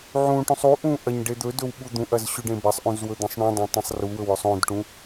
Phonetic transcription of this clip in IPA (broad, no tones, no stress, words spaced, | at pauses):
ʕũʈũsˤ uʔũ ʔɐɲ ɖed̪ɵdɵw ɓud̪ũʔɐz ɕʉɖẽbɐsˤʔũz wɵd̪ɐ̃sˤɳũdˤõ tˤɐ̃sˤruwɵw ɵsˤõdʈũ